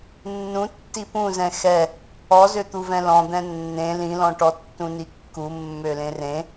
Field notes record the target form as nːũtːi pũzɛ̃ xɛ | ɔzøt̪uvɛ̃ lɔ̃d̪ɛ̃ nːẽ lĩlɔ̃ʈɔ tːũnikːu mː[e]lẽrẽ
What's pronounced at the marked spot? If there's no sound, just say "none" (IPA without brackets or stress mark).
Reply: ø